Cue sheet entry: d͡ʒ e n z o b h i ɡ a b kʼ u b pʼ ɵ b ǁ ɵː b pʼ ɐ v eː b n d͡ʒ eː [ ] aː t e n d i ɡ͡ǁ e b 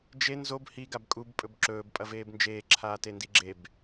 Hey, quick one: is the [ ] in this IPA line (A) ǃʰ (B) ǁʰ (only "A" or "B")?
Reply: B